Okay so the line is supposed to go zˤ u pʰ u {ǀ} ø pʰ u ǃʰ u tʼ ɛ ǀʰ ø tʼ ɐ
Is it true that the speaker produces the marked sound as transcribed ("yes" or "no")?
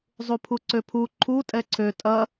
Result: yes